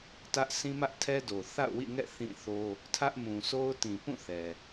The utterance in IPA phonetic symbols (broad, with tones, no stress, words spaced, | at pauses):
tä˦ʔ sĩ˦mä˦ʔtʰɛ˦do˨ θa̰˦˨ʊ̯wḭ˦˨ŋɛ̰˦˨ θĩ˦˨θo˦ | tʰä˦ʔmũ˨sʰo˦ʊ̯ tĩ˨pũ˦˨ θɛ˨